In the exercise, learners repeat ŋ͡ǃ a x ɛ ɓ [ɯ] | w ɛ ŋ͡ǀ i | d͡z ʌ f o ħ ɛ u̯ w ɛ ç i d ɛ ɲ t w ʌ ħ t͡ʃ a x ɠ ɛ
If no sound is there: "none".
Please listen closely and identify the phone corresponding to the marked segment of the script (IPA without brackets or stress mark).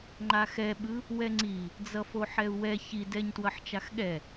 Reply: ɯ